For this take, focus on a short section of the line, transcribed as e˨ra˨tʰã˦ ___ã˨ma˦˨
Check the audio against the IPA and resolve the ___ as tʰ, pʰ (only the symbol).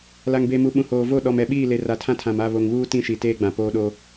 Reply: tʰ